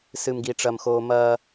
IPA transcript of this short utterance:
sɨ˨mɡi˨ʈ͡ʂɐ˨m xoː˦ mɐː˦

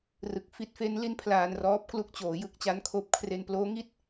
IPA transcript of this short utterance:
rɯ˨˩k̚fi˥˩t̚ fe˦˥nli˦˥n pʰlaː˧nrɔː˦˥p̚ klu˨˩k̚t͡ɕoː˩˦ jɯ˦˥k̚t͡ɕa˦˥nkʰoː˦˥p̚kʰre˧n ploː˦˥ ŋi˥˩t̚

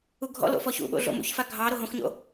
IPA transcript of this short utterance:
uɡʱɔ̰lo̰fɔ çṵɓo̰ ɮo̰mṵçfa ɡʱɑɾo ɦõxɲo̰

